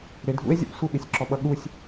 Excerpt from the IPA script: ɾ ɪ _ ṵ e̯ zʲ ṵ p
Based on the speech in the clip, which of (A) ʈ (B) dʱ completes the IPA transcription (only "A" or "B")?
B